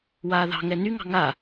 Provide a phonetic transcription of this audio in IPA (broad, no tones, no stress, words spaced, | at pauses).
waːðɑ̤ŋɛ nyŋɑ̤ ŋa